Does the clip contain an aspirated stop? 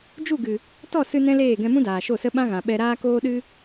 no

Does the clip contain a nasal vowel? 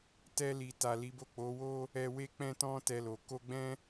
yes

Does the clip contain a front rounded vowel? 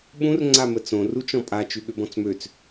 yes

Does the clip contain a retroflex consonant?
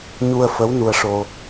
yes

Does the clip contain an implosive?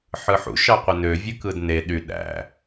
yes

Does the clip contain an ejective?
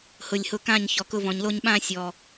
no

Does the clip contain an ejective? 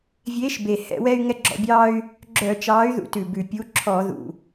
no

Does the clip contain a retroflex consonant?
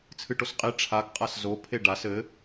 yes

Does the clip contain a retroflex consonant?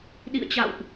no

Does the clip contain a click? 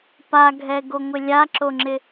yes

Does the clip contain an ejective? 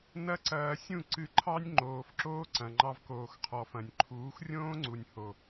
no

